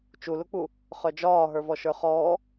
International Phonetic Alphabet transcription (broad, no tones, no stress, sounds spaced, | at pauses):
t͡ʃ u l u k͡p u | χ œ d͡ʒ ɒː ɦ ə˞ v ɔ ʃ ə˞ χ ɔː